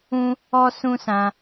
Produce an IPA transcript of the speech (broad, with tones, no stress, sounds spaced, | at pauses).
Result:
ũ˦ | ɔ˦ s ũ˦ s ã˧